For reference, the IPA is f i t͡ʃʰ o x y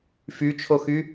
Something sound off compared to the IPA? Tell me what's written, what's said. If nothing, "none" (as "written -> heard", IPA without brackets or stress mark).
i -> y